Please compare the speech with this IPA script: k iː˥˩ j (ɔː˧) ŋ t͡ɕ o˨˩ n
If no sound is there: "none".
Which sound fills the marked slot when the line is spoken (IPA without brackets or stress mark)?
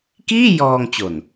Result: ɔː˧